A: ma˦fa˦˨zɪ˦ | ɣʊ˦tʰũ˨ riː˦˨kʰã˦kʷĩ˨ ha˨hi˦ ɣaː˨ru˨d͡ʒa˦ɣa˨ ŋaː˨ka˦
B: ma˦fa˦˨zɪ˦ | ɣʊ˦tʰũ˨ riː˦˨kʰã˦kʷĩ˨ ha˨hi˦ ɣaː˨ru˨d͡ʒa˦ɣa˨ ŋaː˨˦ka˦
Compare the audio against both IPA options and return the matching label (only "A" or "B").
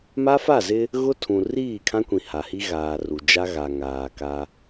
A